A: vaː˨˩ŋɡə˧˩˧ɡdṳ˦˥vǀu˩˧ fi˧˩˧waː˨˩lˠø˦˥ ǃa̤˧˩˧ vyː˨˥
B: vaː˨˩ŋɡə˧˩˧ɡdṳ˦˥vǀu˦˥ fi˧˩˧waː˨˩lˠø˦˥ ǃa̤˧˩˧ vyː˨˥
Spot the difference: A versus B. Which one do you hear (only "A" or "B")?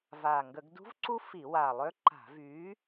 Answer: B